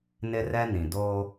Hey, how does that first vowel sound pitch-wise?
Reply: high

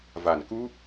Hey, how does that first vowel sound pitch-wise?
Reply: low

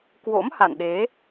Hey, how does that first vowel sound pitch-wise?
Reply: rising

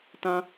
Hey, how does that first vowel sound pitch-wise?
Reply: high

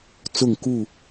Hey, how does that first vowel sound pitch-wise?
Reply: falling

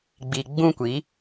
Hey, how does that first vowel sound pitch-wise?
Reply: low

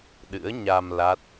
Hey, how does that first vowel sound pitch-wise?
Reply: rising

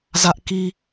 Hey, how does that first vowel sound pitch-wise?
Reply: high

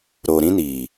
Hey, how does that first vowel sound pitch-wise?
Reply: low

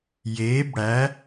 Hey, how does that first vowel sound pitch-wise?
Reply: rising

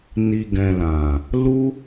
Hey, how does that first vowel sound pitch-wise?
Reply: low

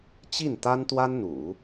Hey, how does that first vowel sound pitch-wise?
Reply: falling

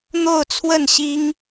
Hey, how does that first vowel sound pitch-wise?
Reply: falling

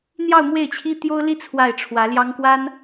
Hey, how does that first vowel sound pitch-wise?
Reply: falling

